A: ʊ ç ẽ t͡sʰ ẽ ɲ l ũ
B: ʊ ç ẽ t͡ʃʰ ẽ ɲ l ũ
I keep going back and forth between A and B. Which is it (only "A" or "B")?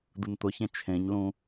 B